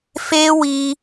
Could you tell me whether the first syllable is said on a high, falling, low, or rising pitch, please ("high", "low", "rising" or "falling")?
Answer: high